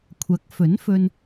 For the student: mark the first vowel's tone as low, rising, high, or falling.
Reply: rising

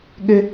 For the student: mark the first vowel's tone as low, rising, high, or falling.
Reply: high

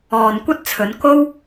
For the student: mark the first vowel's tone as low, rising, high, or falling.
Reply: low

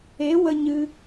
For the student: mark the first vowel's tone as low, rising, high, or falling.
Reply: rising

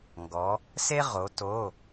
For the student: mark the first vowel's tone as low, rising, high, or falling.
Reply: rising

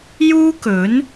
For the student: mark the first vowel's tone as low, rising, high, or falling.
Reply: high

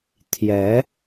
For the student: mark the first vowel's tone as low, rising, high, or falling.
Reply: rising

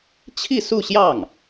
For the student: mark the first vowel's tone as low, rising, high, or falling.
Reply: falling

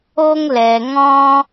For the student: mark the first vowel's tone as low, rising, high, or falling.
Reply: high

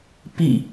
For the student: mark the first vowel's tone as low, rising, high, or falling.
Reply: falling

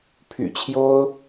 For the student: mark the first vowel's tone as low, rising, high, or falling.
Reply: low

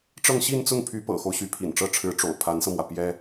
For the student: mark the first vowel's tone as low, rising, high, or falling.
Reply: falling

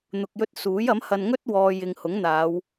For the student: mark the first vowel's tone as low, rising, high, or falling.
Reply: low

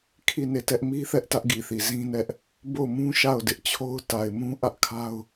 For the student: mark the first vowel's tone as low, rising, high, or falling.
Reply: falling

